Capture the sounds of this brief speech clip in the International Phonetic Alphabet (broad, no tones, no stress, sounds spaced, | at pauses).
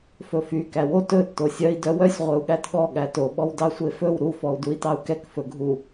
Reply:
f ɵ f y k æ w o t ɵ tː o sʲ œ i̯ d œ w œ sʲ ʁʷ œ u̯ ɠ æ t ɠ ɔ ɠ æ t o ɓ ɔ w d ɑ sʷ e f ɵ w ɾ u f ɔ u̯ d u i̯ t ɑ u̯ k ɛ k f ɵ ɡʱ u